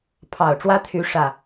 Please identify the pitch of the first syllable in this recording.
low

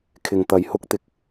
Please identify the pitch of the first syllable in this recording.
low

